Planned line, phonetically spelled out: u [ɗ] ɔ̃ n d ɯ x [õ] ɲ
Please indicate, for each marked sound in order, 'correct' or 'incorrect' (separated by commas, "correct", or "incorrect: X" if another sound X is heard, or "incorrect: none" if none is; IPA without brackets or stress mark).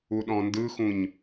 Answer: correct, incorrect: ũ